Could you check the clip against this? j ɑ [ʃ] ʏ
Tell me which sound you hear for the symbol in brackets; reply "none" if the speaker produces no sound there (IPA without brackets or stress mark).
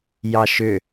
ʃ